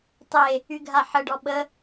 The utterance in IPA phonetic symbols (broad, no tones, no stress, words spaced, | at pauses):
tˤe | yɡʱaħəɖɔ ɓə